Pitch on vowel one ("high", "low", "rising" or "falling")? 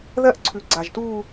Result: falling